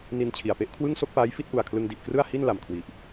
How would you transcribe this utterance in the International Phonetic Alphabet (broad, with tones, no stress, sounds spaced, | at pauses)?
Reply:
n i˧ n t͡ɕʰ i˨˩ a̯ p e˥˩ ʔ kʰ w ɯ˥˩ ŋ s o˥˩ k̚ p aː˦˥ j f i˥˩ t̚ ʔ u˨˩ a̯ kʰ l ɯ˧ ŋ d i˨˩ ʔ k r ɯ˥˩ a̯ h i˥˩ n l a˨˩ m kʰ w i˨˩ ʔ